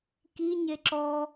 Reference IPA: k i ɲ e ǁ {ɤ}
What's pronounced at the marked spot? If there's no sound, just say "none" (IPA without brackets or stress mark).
ɔ